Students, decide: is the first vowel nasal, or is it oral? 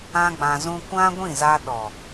nasal